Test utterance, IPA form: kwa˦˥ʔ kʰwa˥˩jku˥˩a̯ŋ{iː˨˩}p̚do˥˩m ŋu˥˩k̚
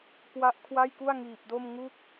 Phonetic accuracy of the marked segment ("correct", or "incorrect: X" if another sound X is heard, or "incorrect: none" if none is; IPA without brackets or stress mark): correct